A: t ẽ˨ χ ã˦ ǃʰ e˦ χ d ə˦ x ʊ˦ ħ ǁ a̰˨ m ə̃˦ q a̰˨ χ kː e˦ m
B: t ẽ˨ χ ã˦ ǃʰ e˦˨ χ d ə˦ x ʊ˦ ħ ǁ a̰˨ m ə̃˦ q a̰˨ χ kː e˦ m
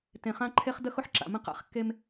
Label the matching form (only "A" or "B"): A